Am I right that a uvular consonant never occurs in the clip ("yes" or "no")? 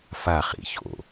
no